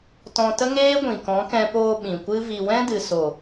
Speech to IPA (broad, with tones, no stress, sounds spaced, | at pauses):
t ɔ̃˧ t ə˦ ŋ eː˦ ɡʷ ĩ˨ k ɔ̃˨˦ k ɛ̃˧ p oː˧ ɓ ĩ˨ kʷ ɨ˦ v i˧ w ɛ̃˦ d ɨ˨ s o˨